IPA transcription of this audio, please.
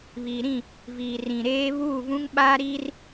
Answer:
βiː˨ɾĩ˦˨ | viː˨rĩ˨ ɾeː˦ βuː˦˨vũ˦ŋɓaː˦ɾiː˦r

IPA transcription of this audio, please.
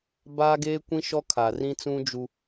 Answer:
baː˦ɡeː˦kʷĩ˦ ʃɔ˦kʰa˨rĩ˦t͡sũ˦ d͡ʒu˦

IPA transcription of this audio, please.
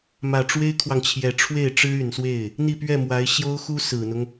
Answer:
mä˨˩ʈ͡ʂwe˥ɪ̯kʰwɑ˨ŋt͡ɕʰjɛ˨˩ ʈ͡ʂʰwe˥˩ɪ̯ʈ͡ʂɻ̩˥y˨˩nswe˥˩ɪ̯ | n̪i˥˧pɥɛ˥˩mwa˧˥ɪ̯ ɕjo˥ʊ̯xu˥ sɹ̩˨˩n̪ʊ˦ŋ

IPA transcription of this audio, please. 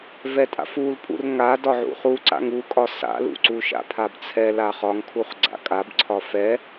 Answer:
vɛtʼa̰fulpʼṵr ŋa dɒʕṵχuǀa̰ŋ ukʼɒ sa̰lṵǀu ʃa̰pʰabt͡sʰɛ laχɒŋkʰuχ ɡ͡ǀa̰kʼab ǀʰɒfɛ

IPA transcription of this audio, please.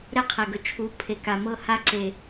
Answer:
ɾɛ˦qʰɛ˨ɡɵ˨ t͡ʃʰu˨˦pʰe˨ka˨ mɤ˦˨ha˦ǀe˨

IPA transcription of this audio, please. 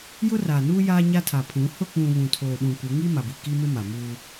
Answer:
jʊ˦raː˨nuː˦ jaː˦ɲa˦ tʰa˨pʰũ˨˦ hʊ˦˨k͡pũ˨ βũ˨tʰoː˨ɗũ˨kʷɪ˨˦ ŋi˦ ma˨bi˨ki˦mɪ˦ ma˨muː˦

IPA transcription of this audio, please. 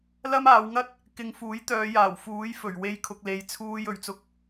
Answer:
lɐ˥maː˨˧wŋɐ˥t̚ | kɪ˨˧ŋfuː˨˥jt̪œː˨˧jaː˨˩w fuː˨˥jfɵ˨˩ɥwe˧j kʰʊ˨k̚le˨jt͡sʰuː˧j ɵ˨˩ɥt͡sʊ˧k̚

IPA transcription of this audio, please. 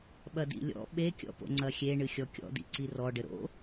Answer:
ɓɐdḭlʲɔ̰ ɓe kʲɔ̰po̰ŋ͡ǀɐxʲe ɳɨxʲɔkʲɔ̰ dḭǀirɔ ɖɘɾo̰

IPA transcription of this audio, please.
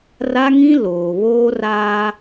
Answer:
ra˦ŋĩ˦ loː˨ βoː˦raː˦

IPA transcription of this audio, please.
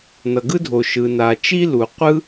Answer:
nʌ˩ɡɯ˥dʱo˩ ʃɯ˩na˩t͡ʃi˥lu˩ qʷɯ˥

